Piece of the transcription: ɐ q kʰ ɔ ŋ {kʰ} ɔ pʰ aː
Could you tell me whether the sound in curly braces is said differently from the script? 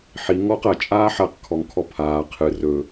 no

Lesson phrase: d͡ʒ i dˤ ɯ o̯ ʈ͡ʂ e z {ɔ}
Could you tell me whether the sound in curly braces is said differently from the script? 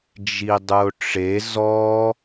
no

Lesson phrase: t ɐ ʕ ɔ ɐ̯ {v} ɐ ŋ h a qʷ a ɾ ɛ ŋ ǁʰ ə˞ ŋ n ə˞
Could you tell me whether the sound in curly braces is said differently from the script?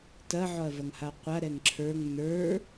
no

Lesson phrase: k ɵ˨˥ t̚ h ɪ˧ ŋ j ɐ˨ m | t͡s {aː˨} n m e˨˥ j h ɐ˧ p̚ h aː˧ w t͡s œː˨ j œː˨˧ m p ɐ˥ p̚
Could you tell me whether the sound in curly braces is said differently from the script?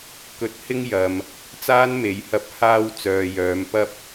yes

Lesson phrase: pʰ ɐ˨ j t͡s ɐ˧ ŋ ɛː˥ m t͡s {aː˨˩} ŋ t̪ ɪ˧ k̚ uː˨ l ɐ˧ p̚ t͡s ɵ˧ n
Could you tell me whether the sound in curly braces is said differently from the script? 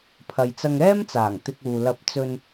no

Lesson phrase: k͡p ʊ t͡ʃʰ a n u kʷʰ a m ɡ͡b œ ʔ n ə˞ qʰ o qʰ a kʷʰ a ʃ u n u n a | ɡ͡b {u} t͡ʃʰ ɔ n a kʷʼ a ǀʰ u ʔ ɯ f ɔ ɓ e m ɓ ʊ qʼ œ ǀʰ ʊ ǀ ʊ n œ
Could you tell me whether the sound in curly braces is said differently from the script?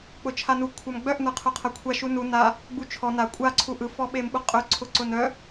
no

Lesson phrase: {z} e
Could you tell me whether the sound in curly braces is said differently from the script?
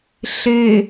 yes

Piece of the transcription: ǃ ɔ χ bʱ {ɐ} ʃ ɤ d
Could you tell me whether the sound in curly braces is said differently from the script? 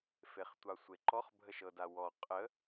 yes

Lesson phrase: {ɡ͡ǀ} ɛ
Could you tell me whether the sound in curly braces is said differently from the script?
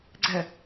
no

